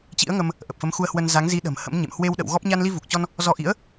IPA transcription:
t͡ɕ ḭ˧˥ ə̯ ŋ ə˧ m | ʔ ə˨˩ p̚ f ə˨˦ m x u˧ ə̯ h w ə˧ n z a˨˦ ŋ z i˨˦ ɗ ə̤˨˩ m h ə̰˧˥ m ɲ ḛ˧˨ m h w e˧ w ɗ ə̰˧˨ w ɣ ɔ˦˥ p̚ ɲ a˧ n l i˧ v u˨˩ k̚ t͡ɕ ɔ˧ n | z ɔ˧ ʔ ḭ˧˥ ə̯

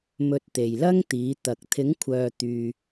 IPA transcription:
m ɵ˧ t̚ t̪ e˨ j l ɐ˥ ŋ t̪ iː˨˧ t̪ ɐ˨ k̚ t̪ʰ ɪ˨˧ ŋ kʷʰ œː˨ t̪ yː˨

